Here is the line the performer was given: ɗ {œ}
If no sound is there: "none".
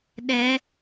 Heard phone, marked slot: ɛ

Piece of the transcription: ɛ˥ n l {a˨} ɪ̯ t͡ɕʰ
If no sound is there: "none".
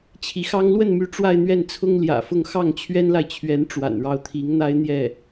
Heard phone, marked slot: a˨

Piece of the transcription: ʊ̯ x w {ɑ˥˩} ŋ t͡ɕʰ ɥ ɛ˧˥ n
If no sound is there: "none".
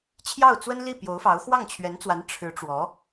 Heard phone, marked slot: ɑ˥˩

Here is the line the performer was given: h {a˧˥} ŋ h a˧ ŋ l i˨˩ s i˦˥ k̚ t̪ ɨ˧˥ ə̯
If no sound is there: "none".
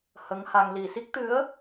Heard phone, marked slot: ə˧˥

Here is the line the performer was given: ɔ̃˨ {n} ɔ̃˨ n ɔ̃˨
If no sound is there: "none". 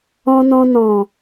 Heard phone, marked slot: n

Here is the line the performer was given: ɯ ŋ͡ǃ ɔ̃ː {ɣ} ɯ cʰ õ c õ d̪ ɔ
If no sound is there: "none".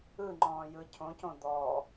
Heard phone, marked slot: j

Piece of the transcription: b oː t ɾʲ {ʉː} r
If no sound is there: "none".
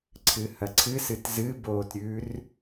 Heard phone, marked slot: ʉː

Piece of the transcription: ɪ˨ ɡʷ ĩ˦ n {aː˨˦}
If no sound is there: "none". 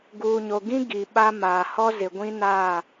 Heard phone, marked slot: aː˦˨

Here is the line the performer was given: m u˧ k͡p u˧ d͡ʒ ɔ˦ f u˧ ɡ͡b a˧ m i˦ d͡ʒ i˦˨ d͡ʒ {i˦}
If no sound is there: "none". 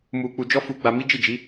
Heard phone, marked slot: i˨˦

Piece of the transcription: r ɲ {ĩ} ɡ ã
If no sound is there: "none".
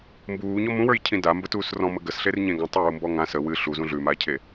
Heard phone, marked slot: ẽ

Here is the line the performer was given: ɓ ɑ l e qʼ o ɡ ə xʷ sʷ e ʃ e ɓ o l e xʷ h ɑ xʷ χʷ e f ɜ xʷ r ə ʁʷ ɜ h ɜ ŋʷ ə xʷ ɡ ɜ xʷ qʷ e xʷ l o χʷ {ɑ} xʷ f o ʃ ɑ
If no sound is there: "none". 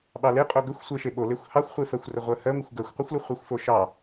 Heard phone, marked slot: ɑ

